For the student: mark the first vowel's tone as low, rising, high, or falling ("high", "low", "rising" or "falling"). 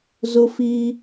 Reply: high